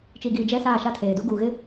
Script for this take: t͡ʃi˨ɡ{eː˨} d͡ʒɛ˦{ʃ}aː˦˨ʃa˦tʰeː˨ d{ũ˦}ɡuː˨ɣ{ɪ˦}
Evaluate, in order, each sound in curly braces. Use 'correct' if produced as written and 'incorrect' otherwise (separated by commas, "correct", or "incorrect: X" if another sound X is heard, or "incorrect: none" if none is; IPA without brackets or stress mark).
incorrect: iː˨, incorrect: s, incorrect: u˦, correct